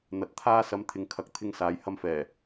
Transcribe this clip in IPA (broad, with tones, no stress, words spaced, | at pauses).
n̪ɐ˨t̚t̪ʰaː˧sɐ˨˧m t̪ʰɪ˨ŋkʰɐ˨˥k̚t̪ʰɪ˧ŋ saː˨˧jhɐ˧mfɛː˨˩